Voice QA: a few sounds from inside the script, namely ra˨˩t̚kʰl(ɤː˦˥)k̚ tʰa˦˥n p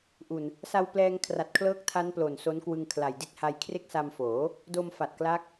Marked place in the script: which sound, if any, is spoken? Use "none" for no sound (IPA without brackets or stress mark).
ɤː˦˥